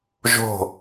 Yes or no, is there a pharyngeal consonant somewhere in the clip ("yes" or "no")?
no